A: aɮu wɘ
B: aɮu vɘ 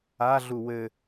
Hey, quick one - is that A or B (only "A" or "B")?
A